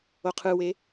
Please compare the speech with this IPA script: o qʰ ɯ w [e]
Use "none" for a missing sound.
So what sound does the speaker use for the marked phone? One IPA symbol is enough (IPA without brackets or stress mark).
e